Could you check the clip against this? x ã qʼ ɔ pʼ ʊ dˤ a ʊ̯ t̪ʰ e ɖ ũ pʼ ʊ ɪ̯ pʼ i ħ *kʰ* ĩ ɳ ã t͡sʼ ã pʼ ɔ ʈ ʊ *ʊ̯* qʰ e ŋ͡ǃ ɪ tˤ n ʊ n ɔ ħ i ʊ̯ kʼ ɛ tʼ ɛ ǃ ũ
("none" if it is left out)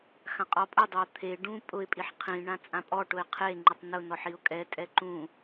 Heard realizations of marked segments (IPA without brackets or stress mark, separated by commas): qʰ, ɪ̯